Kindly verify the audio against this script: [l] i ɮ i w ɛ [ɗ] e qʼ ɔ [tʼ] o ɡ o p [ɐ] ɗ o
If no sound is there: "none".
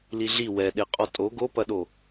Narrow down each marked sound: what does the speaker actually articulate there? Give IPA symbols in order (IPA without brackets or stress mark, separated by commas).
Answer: l, ɗ, tʼ, ɐ